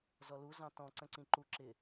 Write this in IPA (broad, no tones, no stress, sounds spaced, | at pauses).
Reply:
z ɔ l u z ɑ̃ t ɔ̃ ǀ ə̃ ǀ ĩ ǃ u ǁ ɪ